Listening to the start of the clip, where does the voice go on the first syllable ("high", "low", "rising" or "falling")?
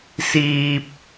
low